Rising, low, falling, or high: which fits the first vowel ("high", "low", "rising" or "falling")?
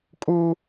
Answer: high